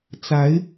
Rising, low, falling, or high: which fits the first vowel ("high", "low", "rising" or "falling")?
rising